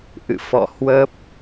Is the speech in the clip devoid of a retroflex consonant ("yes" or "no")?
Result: yes